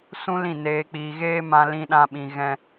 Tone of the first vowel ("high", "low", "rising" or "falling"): high